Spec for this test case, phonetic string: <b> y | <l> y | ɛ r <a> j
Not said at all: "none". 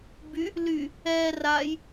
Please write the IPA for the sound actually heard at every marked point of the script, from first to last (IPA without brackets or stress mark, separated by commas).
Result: b, l, a